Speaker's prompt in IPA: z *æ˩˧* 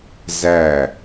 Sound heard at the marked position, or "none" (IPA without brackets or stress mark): æ˧˩